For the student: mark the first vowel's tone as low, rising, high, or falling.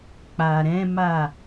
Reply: low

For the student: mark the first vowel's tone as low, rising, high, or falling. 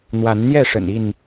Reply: rising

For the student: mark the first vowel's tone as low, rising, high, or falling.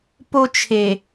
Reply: high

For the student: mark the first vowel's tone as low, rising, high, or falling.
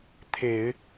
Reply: low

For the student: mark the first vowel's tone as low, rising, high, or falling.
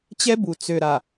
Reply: high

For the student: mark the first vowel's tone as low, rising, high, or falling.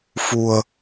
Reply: low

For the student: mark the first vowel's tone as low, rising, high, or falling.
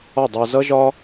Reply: falling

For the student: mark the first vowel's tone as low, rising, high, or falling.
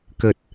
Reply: low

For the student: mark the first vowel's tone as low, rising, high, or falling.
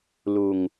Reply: low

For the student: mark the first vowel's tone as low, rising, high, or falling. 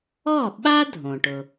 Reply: falling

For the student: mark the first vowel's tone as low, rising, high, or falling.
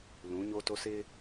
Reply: rising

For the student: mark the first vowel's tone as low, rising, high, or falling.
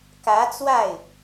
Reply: rising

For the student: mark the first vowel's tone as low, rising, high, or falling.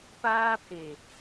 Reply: high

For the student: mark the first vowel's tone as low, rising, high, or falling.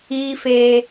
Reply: high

